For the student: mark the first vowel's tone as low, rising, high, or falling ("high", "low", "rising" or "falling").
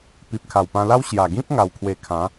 low